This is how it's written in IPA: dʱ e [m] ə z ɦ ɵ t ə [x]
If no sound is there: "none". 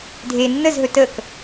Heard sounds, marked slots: nː, k

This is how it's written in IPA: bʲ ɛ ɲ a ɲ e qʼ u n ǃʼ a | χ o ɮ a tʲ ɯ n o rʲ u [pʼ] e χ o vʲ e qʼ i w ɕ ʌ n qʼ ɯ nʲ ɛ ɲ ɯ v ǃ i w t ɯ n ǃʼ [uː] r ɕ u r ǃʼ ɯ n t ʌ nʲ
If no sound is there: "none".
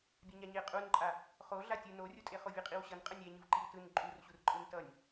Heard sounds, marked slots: tʼ, u

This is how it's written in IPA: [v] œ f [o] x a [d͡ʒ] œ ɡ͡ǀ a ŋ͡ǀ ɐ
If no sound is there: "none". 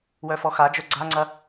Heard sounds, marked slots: w, ɔ, d͡ʒ

